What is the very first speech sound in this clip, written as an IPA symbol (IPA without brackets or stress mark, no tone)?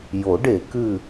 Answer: j